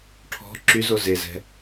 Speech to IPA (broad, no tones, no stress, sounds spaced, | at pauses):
ʈʰ ɔ̤ ǁ y z o z e z ɛ̤